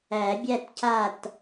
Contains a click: no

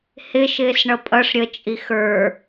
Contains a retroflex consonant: yes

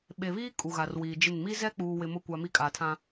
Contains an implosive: yes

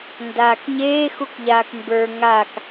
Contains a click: no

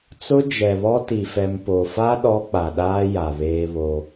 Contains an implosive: yes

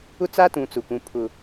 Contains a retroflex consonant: no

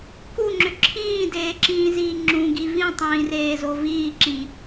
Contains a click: yes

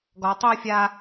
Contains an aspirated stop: no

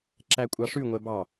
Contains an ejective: yes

